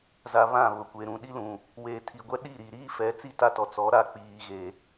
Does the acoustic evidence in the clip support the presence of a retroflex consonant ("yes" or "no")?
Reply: no